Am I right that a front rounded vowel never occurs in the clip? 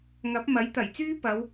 no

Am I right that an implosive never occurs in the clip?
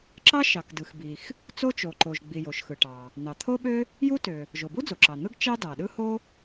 no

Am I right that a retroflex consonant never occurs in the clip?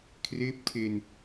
yes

